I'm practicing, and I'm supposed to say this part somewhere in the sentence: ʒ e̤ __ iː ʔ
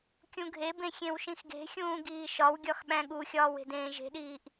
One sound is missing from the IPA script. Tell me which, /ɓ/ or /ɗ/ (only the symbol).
ɗ